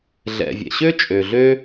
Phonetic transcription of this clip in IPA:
ɮ ɛ̰˩ vʲ ɛ̰˩ ɕ ø˥ t͡ʃʼ ø˩ ɮ ø˥

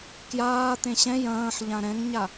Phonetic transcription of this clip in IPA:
k j aː t̪ ẽ ɕ ɛ̃ j ɐ̃ː ħ ʎ ã ɾ ɛ̃ ŋ ɲ a

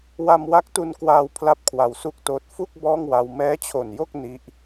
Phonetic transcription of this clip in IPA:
w a˧ m w a˦˥ k̚ t u˧ n k w aː˧ w pʰ l a˥˩ p̚ kʰ w a˧ w s u˥˩ k̚ t oː˦˥ t̚ f u˥˩ k̚ b ɔː˥˩ ŋ w a˧ w m ɛː˦˥ t͡ɕʰ o˨˩ n j o˥˩ k̚ n i˦˥ ʔ

